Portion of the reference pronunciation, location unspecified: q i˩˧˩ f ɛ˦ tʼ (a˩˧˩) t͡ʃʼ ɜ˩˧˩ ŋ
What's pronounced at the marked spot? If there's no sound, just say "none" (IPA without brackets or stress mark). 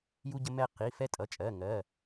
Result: ʌ˩˧˩